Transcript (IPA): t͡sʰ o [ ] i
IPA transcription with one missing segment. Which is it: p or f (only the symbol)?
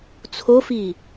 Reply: f